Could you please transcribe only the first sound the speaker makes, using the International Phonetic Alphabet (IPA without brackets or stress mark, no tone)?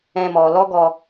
ɛ̃